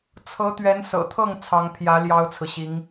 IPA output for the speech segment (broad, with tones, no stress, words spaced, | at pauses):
t͡sʰɤ˧˥t̪ɥɛ˧˥n sɤ̰˨˩t̪ʰɤ˥˩ŋ t͡sʰɑ˧˥ŋpʰjä˧˥ ljɑ˥ʊ̯t͡sʰɹ̩˨ɕi˧˥ŋ